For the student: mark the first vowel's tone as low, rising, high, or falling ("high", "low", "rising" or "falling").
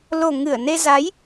low